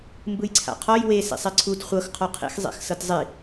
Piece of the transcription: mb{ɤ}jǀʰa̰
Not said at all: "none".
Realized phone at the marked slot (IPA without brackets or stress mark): ɯ